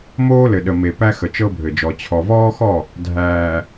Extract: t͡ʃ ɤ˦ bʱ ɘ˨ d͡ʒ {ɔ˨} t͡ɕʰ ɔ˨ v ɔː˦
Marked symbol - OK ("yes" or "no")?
yes